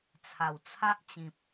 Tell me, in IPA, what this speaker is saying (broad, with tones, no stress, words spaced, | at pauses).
t͡sʰa˨˩wt͡sʰa˦ʔt͡ɕĩ˨p̚